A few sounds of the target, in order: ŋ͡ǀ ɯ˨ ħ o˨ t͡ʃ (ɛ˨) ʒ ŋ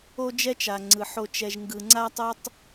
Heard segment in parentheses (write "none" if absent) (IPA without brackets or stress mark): ɛ˨